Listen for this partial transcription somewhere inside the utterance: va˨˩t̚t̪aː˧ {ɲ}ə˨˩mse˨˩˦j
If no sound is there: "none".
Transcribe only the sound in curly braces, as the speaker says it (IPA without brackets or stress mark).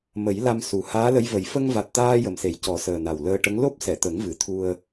j